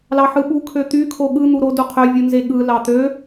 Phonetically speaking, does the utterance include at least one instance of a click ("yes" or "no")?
no